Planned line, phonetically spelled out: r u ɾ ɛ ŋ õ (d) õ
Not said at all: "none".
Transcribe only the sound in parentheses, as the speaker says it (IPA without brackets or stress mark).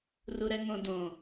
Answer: d